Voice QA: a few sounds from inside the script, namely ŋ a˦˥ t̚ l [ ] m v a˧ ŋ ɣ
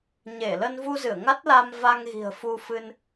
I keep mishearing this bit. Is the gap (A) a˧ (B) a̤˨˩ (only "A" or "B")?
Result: A